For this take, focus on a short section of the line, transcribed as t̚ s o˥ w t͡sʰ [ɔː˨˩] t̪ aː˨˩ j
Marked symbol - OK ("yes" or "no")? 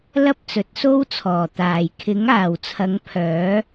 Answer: yes